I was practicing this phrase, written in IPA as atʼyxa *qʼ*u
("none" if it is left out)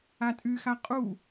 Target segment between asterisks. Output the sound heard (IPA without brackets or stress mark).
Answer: qʼ